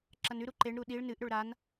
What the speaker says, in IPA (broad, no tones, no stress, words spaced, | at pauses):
ǁɐnʉɾu ǃeɳɾu ɗiɭ nɨʔɾɵɭ ɾan